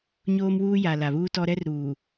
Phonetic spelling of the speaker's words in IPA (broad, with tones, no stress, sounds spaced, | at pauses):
ɲ oː˦ m w uː˦ j a˨ l a˨ β uː˦ t ɔ˦ ɾ ɛ˦ r ɾ uː˨